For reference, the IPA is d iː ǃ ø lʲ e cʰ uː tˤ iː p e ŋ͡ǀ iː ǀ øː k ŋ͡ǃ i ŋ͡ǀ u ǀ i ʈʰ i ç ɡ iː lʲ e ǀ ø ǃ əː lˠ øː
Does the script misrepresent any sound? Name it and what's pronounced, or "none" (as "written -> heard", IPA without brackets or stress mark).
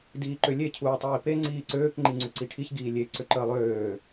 none